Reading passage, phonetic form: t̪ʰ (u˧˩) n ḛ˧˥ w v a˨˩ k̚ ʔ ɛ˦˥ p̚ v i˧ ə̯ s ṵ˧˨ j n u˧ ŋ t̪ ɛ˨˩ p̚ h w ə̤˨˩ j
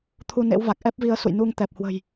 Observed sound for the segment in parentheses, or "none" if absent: u˧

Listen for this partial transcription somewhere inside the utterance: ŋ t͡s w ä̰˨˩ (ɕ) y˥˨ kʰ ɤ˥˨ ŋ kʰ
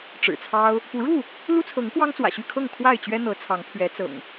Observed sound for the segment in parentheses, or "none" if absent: ɕ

